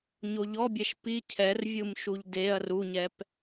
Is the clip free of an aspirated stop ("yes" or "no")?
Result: no